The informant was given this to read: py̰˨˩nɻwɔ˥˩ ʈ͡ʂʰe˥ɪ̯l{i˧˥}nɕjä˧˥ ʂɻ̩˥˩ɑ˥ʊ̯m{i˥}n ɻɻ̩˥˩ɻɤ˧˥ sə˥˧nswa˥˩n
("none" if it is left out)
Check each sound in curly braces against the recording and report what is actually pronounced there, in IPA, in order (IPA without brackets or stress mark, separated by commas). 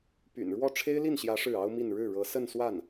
i˥˩, i˥˧